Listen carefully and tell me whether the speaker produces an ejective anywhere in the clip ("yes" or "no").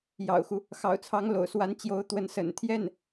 no